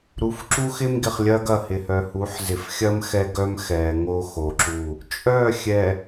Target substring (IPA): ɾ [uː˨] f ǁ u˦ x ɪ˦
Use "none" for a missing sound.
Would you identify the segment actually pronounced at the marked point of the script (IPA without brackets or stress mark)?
u˨